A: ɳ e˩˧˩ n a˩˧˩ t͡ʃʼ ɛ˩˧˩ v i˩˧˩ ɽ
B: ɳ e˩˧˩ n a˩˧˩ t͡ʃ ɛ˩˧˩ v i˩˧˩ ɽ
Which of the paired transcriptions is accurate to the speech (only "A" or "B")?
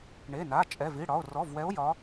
A